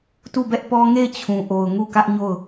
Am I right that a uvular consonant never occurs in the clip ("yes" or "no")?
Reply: yes